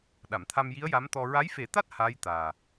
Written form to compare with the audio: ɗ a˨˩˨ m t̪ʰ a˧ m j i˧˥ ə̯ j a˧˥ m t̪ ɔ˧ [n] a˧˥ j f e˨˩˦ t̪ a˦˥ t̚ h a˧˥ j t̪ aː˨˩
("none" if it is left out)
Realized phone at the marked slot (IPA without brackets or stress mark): ɹ